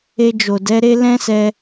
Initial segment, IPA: e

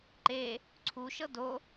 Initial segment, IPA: ǃ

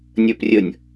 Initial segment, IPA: nʲ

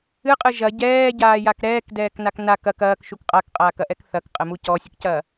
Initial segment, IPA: ɨ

